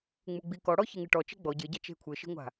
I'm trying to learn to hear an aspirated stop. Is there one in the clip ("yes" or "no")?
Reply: yes